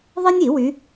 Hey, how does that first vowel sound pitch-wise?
high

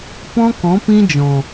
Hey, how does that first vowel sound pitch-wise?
high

